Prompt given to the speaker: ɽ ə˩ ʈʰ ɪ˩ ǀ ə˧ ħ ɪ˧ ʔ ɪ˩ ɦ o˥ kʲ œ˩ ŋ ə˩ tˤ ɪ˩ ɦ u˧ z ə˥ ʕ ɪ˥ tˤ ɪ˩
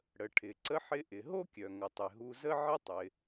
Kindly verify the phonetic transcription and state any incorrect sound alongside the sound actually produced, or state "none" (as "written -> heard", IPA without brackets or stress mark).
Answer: none